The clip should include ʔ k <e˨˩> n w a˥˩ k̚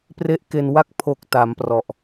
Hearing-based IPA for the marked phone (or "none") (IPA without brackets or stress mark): e˧